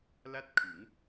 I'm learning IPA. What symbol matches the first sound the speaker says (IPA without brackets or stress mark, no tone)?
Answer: l